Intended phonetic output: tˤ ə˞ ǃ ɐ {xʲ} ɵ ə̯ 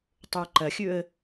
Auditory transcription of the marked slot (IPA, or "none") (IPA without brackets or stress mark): xʲ